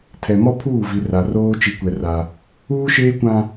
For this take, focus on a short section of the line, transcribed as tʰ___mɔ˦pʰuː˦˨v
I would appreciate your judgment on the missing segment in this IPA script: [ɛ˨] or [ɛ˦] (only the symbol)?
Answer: ɛ˨